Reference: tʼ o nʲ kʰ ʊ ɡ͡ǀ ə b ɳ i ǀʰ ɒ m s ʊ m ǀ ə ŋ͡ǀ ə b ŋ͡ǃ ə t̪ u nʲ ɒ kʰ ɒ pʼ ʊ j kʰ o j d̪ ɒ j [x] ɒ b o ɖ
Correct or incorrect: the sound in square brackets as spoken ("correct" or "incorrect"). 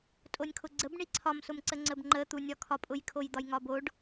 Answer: incorrect